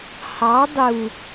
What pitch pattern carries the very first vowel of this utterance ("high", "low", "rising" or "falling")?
rising